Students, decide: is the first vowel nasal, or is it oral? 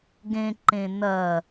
nasal